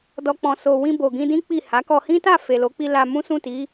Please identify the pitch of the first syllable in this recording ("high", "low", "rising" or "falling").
high